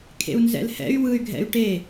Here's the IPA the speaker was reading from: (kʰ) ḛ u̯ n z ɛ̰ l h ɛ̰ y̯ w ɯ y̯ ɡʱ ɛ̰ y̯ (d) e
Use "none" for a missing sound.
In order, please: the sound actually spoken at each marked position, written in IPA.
kʰ, ʈ

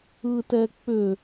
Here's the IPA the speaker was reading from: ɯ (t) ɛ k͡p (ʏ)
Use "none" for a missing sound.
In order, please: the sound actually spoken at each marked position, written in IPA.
t, ʏ

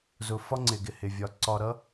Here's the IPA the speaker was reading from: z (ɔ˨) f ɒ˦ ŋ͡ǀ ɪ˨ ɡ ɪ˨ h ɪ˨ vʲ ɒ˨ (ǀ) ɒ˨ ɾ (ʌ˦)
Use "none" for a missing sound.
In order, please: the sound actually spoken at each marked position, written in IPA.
ʊ˨, ǀ, ʌ˦

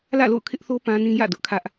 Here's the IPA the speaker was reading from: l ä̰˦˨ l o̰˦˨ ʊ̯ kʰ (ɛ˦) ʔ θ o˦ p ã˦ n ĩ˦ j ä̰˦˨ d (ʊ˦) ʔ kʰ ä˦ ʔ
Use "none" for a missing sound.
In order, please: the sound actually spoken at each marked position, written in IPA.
ɪ˦, ʊ˦

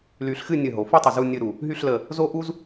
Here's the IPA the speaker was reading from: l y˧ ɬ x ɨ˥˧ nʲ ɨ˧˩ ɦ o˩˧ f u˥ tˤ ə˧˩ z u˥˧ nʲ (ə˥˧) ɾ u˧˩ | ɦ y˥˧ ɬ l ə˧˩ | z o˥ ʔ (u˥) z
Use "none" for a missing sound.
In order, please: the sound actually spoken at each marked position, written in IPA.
ɨ˥˧, u˥

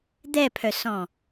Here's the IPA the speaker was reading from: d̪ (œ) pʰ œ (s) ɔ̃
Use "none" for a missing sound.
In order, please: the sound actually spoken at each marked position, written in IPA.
ɛ, s

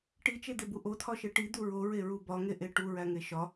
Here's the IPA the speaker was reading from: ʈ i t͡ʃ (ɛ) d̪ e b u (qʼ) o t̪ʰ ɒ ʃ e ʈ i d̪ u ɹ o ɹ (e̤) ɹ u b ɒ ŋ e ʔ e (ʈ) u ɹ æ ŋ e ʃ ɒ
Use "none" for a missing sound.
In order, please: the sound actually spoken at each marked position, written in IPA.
e, ʔ, e, ʈ

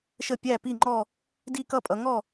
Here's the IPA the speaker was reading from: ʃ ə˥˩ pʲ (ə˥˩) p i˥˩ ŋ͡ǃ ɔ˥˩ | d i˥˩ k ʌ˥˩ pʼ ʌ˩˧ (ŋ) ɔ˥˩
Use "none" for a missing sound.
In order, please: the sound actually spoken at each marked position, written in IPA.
æ˥˩, ŋ

